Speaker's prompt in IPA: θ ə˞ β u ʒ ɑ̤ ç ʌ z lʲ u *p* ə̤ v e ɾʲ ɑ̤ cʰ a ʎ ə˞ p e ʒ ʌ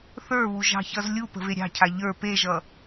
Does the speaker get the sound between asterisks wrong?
no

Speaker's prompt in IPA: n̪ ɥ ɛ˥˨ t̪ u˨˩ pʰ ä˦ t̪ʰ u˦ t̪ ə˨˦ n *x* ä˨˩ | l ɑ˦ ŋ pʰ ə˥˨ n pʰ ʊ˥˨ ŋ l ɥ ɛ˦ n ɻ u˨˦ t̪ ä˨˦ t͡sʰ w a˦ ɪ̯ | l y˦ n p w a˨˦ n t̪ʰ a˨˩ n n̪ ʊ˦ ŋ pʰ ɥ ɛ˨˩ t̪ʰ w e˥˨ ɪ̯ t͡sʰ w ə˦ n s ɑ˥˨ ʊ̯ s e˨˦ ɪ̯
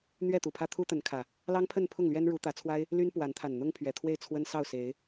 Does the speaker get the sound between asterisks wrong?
yes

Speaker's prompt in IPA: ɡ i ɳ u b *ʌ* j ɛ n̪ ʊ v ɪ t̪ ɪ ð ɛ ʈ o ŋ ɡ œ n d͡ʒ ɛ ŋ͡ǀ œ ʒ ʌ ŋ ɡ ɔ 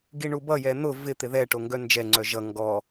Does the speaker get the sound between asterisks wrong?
no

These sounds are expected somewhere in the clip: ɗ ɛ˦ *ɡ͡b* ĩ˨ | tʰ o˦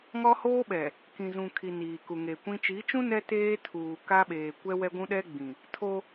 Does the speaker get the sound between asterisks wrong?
no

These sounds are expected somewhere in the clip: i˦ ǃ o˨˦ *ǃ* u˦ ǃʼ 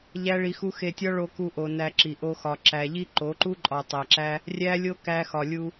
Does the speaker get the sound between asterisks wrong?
no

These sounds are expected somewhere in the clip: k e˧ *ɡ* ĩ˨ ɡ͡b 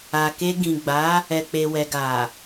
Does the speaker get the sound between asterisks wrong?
no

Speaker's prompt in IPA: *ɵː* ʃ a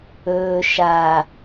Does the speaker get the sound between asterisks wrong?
no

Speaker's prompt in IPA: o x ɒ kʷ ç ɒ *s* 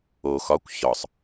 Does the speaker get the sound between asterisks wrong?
yes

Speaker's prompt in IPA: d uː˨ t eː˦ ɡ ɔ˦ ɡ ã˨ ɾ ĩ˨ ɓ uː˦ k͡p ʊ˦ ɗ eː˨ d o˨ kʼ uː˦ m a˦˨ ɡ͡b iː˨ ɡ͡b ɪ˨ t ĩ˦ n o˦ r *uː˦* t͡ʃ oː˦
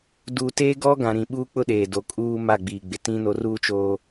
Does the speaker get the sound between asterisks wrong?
no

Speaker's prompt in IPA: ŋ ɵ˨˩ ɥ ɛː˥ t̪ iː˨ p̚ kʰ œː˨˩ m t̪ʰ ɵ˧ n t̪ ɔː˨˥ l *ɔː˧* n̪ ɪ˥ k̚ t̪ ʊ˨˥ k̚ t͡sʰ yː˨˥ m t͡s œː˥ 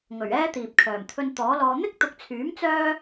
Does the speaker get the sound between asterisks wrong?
no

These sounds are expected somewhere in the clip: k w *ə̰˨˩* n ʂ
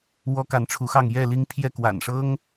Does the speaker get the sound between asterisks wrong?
yes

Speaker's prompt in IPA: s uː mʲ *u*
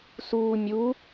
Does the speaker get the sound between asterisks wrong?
no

